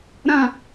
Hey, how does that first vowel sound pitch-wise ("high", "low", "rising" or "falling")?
low